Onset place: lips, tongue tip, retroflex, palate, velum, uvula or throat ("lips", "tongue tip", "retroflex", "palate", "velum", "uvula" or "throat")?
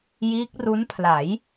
palate